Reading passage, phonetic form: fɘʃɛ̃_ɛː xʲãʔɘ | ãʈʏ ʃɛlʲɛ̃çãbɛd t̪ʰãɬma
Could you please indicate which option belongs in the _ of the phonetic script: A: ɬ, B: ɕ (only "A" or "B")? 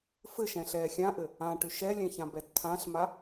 A